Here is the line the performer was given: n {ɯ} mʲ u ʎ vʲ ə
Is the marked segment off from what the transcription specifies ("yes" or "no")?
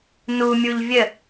yes